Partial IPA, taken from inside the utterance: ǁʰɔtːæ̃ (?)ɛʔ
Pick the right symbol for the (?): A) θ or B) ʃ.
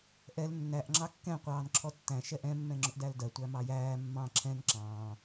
B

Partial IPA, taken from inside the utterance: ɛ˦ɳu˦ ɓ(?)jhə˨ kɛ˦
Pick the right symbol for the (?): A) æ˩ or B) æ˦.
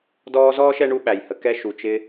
A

